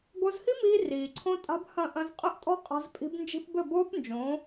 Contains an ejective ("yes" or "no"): yes